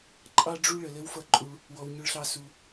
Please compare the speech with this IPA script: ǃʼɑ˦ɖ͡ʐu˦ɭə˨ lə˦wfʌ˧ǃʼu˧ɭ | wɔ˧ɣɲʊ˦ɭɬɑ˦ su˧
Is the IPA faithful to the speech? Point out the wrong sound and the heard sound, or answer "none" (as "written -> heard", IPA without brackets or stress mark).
ɣ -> w